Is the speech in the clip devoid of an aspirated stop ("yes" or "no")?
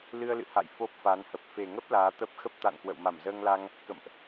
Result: yes